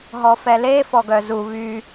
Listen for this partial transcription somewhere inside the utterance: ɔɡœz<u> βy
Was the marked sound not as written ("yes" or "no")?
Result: no